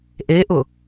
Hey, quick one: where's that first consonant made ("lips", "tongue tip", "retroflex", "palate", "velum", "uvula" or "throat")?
throat